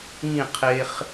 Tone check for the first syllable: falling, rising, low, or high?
falling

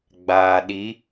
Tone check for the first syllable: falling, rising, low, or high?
low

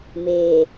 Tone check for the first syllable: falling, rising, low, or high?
low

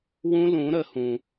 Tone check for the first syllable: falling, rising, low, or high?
high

